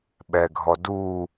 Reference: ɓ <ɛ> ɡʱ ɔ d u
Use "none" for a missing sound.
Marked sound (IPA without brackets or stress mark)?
ɛ